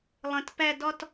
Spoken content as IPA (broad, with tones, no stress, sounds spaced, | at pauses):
lˠ ə̃˨ t p æ˨ d ɒ˨ t